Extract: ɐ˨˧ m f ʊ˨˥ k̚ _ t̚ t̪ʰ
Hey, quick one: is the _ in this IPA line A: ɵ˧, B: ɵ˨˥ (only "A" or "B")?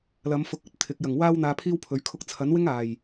B